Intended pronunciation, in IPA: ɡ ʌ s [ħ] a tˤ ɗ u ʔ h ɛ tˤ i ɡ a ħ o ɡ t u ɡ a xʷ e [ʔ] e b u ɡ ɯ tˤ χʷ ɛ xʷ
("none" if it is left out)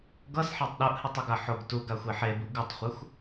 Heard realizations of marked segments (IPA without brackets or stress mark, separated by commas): ħ, ħ